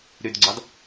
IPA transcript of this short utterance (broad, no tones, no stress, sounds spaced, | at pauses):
ɾ y d ɡ͡ǀ ɑ d